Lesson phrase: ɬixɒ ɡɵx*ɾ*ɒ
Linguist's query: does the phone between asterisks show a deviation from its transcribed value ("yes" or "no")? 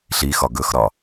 no